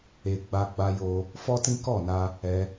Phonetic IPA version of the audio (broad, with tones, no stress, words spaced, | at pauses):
e˧ ɡ͡ba˧ɡ͡ba˧jo˧ | fɔ˦tĩ˦ kɔ˦˨na˧ | ɛ˧